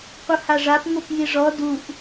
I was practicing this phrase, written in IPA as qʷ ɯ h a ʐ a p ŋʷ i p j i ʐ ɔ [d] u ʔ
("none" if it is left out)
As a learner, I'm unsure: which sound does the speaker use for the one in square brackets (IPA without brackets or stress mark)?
d